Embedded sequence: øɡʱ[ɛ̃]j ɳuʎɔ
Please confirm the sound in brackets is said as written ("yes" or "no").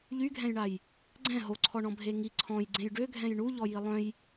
yes